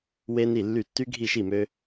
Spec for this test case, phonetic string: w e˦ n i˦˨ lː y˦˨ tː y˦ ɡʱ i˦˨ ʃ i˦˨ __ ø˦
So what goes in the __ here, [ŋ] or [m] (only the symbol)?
m